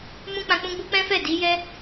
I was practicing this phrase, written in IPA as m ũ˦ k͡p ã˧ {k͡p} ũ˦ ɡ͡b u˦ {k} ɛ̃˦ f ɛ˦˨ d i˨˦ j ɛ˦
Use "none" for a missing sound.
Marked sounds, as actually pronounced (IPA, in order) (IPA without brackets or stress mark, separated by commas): k͡p, k͡p